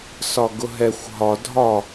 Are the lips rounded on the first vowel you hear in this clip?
yes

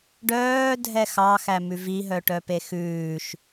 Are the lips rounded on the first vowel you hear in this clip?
yes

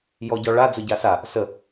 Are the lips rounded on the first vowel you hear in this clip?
yes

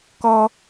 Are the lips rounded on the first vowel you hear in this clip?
yes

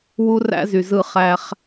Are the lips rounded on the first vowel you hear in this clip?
yes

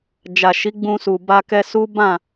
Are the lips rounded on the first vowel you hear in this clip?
no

